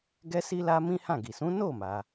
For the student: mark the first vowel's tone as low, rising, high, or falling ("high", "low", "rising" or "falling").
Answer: high